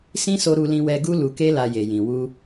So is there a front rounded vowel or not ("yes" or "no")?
no